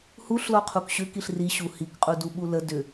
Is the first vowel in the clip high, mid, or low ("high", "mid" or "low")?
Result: high